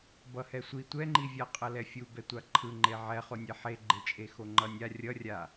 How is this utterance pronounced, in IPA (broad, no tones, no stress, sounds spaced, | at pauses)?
b ʌ h ɛ sʷ i tʷ ɛ ŋ͡ǃ i vʲ a qʼ ʌ l ɛ fʲ u b ɛ tʷ a ǃʰ ɯ ŋ͡ǃ e ʕ ɛ χ o nʲ e ħ e ɡ͡ǃ e t͡ʃʼ e x o ŋ͡ǃ ʌ nʲ a rʲ ʌ rʲ a